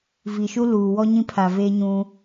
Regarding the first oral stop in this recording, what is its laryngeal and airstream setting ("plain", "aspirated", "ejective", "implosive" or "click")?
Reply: aspirated